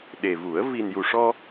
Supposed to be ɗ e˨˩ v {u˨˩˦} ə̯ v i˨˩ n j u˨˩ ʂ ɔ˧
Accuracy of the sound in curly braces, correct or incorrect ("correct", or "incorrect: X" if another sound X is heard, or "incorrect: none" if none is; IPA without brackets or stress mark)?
correct